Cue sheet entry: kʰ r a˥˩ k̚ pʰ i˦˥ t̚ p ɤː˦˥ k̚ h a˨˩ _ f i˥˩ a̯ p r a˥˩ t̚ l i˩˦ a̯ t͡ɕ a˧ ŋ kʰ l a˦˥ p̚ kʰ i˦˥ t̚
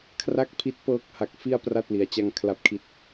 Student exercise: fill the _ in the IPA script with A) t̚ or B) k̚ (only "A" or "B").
B